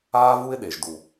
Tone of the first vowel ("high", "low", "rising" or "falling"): high